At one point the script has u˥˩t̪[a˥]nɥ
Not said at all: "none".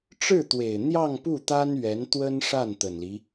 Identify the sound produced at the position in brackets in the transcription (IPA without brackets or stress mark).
a˥